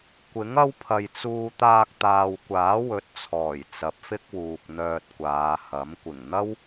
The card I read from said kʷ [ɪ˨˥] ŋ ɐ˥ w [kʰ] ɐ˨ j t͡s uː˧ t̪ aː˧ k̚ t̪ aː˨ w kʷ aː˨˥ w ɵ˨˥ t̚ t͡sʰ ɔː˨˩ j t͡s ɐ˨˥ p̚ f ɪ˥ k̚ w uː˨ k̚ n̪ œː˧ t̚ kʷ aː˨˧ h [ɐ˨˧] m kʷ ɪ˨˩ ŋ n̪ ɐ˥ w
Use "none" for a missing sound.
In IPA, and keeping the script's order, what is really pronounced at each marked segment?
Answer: ɪ˨˥, pʰ, ɐ˨˥

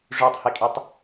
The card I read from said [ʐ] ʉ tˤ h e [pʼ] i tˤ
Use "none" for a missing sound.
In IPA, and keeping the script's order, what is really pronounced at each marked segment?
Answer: ʐ, kʼ

